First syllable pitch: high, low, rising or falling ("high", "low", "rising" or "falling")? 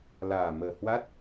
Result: low